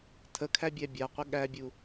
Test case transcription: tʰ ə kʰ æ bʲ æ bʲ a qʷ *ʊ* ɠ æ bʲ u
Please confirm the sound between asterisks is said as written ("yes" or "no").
no